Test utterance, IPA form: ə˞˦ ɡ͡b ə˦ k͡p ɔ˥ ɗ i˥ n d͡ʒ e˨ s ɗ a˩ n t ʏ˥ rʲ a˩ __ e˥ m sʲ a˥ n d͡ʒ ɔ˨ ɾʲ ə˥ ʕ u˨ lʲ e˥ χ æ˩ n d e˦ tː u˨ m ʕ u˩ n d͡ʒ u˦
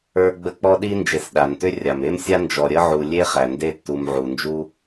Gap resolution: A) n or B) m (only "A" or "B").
B